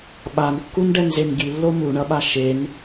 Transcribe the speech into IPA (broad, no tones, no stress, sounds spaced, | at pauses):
ɓ a n kː u n ɖ ɛ n z e n ɡ i lː o m u ɳ ʌ ɓ a ʃ e n